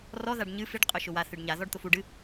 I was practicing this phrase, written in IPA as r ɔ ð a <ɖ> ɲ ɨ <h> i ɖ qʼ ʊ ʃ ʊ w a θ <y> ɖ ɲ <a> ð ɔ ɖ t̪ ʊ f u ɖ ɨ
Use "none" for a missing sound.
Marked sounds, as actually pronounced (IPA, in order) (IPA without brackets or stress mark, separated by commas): ɖ, f, ɨ, a